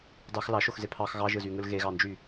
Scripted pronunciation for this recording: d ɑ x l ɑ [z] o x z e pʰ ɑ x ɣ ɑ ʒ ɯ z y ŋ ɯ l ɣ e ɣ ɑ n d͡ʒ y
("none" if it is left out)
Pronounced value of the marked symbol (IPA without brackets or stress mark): ʃ